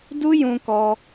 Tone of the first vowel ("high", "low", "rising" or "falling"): high